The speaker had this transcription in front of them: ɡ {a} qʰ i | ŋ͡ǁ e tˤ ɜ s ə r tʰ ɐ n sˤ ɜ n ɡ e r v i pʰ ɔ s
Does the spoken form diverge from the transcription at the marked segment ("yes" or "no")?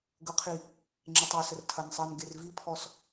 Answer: yes